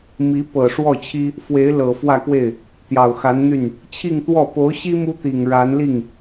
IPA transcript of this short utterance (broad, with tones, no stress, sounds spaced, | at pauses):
m i˧˥ p ɤ˨˩ ʂ w ɔ˥˩ t͡ɕʰ i˥ | f w e˧˥ ɪ̯ l ɤ˨˩ f w ä˥˧ k w e˥˩ ɪ̯ | t̪ j ɑ˨˩ ʊ̯ x a˧˥ n n̪ y˥˩ n | t͡ɕʰ i˥˧ ŋ t̪ w ɔ˥˩ p o˧˥ ʊ̯ ɕ i˥ m u˥ t̪ i˨˩ ŋ ɻ a˧˥ n l i˥˩ ŋ